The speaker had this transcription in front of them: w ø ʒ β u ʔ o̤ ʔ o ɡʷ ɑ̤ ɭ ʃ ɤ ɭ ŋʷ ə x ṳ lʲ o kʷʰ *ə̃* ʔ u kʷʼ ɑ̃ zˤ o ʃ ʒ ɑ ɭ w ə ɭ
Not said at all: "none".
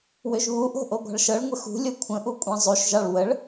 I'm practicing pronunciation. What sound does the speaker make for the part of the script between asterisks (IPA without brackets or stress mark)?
ə̃